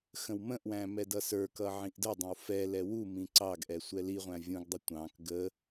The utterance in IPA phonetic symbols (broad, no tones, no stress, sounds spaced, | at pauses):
x ə̃ w m ə̃ ʔ w æ̃ m ɛ d ʌ s ə˞ k ʌ ʕ ĩ ʔ d ə dˤ ə̃ w f ɛ l ɛ w u m ĩ ǀ ɑ ɡ ʔ ɛ sʷ ɛ l i ʁʷ æ̃ vʲ ũ ɡ dˤ ə tʷ ɑ̃ k ɡ ə